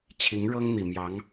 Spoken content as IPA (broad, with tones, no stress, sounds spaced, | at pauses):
t͡ɕʰ i˧˥ ŋ ɻ ɤ˥ ŋ n̪ i˨˩ m j ɑ˧˥ ŋ